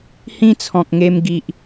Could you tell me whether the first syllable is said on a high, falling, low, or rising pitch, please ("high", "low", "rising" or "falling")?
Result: high